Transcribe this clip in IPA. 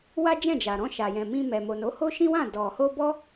w a˦ d͡ʒ ɛ̃˦˨ d͡ʒ a˨ ɾ ɔ̃˧ ʃ a˨ j ɛ̃˨ m ĩ˧ m ɛ˨ m o˨ n o˨˦ h o˦ ʃ ĩ˦ w ã˦˨ d ɔ˨ h o˧ b ɔ˦

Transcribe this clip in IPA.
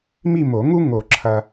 m i˥˧ m o˨˩˦ ŋ u˥ ŋ o˨˩˦ ǁʰ ɐ˨

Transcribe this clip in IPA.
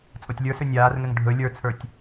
t͡sʼ o tʲ lʲ ə˞ s ɵ nʲ aː r ŋ ɛ ŋ ɖʱ ɵ lʲ ə˞ t͡sʰ ə˞ tʲ

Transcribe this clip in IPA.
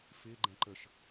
f ɪː ɡ͡ǃ ɛ̃ ǃ ə ʃ

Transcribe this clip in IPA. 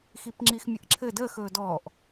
x i p ŋ͡ǁ i x mʲ ə ʔ ǁʰ ɘ d əː x ɵː d ɔː ʔ

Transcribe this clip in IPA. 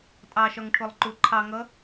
tʼ ɑ ʃ ɒ ŋ ʈʰ ʊ lˠ ǃ u ǃʰ ɑ ŋ ʌ

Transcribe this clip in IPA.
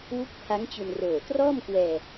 w u˦˥ k̚ pʰ a˦˥ ŋ t͡ɕ u˧ n r oː˨˩ t r ɔː˥˩ m k w ɛː˧

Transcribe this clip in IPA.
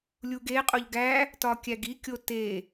lʲ u ɡ e qʼ o ʎ ɡ æ | t ɒ kʲ æ ɡ i kʲ o t e

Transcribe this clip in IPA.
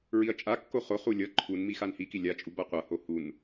ɹ i ɐ̯ t͡ʃʼ a kː o χ o χ u lʲ ʌ ǃʰ u n m i x a n h i k i lʲ a t͡ʃʼ u b a qʷ ʌ h o h u n

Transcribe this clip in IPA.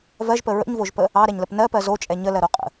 v ɜ ʒ p ə ɹ ə̰ ɲ v o ʒ p ə | ɑ ɾ ɛ ɲ l ə p n ɜ p ɜ z o t͡ʃʼ ɛ ɲ ə l ɜ ɾ o qʼ ə̰

